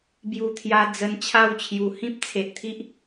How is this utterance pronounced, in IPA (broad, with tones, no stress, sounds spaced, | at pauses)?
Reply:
b j u˨˩ t̪ʰ j a˧ d͡z ə˧ n t͡ɕʰ a˥˧ w t͡ɕʰ j u˨˩ h ĩ˦ p̚ t͡sʰ e˨ ʔ t̪ʰ i˦ ʔ